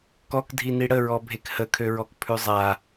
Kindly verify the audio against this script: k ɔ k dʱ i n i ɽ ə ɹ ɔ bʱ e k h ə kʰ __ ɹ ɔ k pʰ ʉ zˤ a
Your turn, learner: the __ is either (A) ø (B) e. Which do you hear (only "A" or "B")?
A